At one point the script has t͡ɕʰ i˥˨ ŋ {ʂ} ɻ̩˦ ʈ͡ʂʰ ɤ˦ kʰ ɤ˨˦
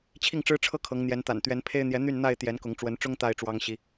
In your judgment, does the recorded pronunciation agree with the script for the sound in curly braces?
no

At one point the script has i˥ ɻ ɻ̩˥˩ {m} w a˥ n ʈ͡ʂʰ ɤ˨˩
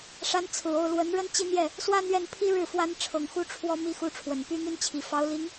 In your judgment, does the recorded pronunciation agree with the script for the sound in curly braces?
no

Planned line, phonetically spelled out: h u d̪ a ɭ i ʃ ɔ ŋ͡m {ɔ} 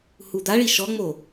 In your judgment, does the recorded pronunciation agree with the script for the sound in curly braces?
no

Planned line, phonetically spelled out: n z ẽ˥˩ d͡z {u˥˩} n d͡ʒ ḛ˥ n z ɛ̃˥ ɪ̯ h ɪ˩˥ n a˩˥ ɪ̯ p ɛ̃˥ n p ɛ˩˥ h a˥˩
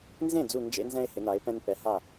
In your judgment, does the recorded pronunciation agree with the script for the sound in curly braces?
yes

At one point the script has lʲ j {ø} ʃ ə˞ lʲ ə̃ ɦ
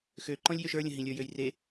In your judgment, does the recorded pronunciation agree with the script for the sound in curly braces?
yes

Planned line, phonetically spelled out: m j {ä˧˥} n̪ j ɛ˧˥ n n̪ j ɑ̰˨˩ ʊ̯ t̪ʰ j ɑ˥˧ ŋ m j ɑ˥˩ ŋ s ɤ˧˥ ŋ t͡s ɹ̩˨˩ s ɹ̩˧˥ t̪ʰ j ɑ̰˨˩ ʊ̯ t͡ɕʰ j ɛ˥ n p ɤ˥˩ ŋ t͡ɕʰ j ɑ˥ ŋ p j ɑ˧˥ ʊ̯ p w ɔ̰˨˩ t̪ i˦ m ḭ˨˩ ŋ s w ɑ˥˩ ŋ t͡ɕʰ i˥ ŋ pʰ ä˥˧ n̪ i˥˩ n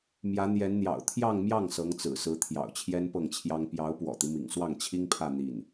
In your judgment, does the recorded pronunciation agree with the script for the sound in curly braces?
yes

